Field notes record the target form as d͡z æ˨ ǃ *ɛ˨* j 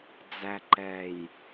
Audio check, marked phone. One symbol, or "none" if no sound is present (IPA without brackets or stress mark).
ɛ˨